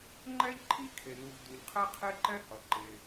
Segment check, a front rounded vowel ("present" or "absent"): absent